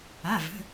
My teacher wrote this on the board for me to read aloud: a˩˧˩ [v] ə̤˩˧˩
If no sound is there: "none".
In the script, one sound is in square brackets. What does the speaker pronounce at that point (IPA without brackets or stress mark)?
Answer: v